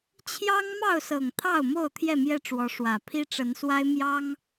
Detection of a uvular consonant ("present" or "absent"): absent